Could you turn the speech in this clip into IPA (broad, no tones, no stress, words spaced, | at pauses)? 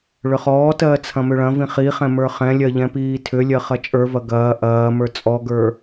ɭʏχɔːtɜː t͡sʰɐ̃mʏɭɐ̃vĩ χiχɛ̃ mə˞χɛ̃lʲɜ ʎɛ̃piːtʰʏlʲɜ χɐt͡ʃʼə˞vɐ ɡɐː ʔɐː mə˞t͡sʼɔɡə˞